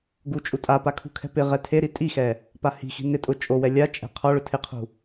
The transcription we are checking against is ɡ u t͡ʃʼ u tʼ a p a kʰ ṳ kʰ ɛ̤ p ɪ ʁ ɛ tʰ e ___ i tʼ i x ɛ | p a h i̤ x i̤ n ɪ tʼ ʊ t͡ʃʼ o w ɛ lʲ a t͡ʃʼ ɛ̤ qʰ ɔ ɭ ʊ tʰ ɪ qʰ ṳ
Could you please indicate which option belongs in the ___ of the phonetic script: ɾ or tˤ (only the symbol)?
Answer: ɾ